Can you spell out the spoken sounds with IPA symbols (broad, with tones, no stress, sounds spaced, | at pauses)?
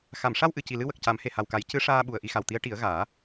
x a˨˩˨ m ʂ a˧ w ʔ ɨ˨˩˨ c i˨˩ l ɨ˧ w ə˨˩ k̚ c a˨˩˦ m h e˨˩ h a˨˩ w k a˨˩˦ j c ɨ˧˥ ʂ aː˧ ɓ u˨˩ ə̯ ʔ i˧ x a˨˩ w t̪ i˧˥ ə̯ ʈ i˨˩˦ ə̯ ɣ aː˨˩˦